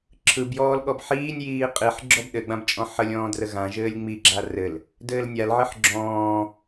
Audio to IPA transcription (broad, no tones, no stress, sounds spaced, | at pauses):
ǁʰ ɯ b j ɔː l ɠ ɔ b ħ iː nʲ j iː qʼ i ħ ɡ͡ǁ ɔ b ɗ ɘ ɡ͡b ã b t͡ʃʼ ɔ̃ ħ ə lʲ ɔ̃ː d r ə ɣ ã ʒ ɘː lʲ ŋ͡m i ɡ͡ǁ a r ɘ l | d ɘː l nʲ a l ʕ ɯ ħ ɡ͡ǁ ɔ̃ː